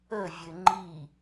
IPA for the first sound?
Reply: ə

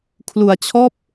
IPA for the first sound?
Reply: kʰ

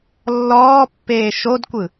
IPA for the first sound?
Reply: lː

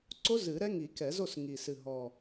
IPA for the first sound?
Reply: ǀ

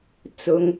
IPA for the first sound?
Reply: t͡s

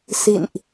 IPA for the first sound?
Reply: s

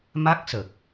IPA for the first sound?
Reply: m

